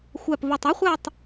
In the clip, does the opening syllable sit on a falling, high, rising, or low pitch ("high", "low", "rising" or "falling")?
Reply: low